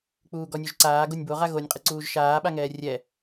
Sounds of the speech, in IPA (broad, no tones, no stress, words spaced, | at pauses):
k͡puːɡɔnʲoʒǀaː ɡonʲboʁa ɣonʲqʼɨǀuːʒ ʃaːɓaŋɛː rʲɛ